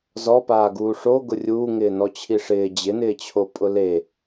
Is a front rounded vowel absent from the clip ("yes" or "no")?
yes